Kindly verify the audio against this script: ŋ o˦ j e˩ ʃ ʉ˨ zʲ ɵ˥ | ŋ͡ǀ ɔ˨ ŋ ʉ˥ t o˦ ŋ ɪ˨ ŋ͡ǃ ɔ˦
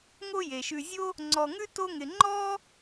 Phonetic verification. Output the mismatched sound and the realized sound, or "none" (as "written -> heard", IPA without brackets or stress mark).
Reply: ɵ˥ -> o˥